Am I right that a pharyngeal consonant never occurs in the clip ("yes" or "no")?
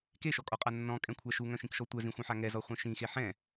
no